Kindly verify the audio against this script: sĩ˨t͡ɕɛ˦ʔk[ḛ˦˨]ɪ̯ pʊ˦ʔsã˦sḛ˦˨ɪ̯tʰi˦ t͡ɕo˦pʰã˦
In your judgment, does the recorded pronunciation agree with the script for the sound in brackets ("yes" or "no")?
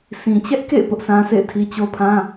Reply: yes